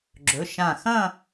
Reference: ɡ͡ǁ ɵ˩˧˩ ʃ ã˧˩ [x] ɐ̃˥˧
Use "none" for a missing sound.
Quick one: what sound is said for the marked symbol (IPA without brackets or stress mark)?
x